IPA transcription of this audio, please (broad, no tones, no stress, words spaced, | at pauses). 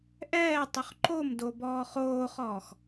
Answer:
ʔɛːtˤʏχ ǃomdo bɔːχoːχɔːx